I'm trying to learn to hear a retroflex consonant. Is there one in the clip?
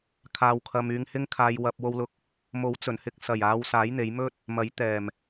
no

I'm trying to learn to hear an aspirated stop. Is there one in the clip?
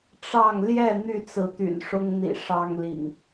no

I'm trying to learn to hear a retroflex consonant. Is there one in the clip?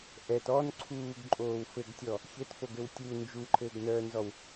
no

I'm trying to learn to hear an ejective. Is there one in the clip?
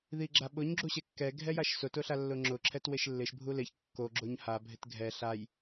no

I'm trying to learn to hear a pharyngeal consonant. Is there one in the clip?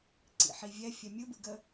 yes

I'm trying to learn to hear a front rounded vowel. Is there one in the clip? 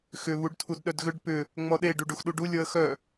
yes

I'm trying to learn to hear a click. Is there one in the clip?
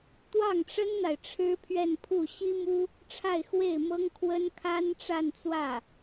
no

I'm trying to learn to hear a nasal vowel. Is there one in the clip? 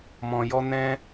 yes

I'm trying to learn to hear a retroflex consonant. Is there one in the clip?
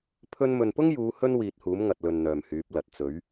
no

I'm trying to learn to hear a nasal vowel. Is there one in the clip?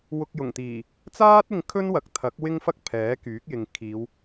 no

